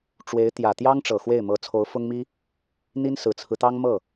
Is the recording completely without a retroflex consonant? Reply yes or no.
no